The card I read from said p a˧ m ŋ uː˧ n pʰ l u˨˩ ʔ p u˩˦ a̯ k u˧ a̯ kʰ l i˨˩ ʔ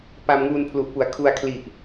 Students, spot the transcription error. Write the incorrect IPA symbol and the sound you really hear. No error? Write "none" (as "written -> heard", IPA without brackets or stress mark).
k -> kʰ